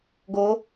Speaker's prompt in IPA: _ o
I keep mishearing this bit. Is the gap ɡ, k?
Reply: ɡ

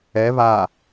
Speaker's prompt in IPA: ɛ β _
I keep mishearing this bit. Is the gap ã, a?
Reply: a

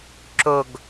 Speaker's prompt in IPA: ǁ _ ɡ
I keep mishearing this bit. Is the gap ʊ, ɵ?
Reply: ɵ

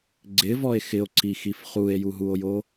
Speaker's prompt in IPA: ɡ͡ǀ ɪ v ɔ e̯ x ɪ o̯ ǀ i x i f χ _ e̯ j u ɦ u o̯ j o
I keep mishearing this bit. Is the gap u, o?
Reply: u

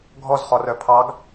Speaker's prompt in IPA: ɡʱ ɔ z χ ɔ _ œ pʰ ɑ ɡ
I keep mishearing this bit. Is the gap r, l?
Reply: r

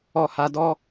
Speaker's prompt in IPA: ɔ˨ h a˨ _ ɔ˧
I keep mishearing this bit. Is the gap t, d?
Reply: d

